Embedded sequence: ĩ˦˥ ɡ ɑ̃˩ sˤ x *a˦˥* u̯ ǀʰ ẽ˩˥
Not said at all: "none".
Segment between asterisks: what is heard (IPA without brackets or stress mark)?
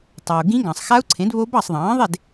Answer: a˦˥